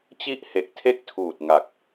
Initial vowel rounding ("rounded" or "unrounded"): unrounded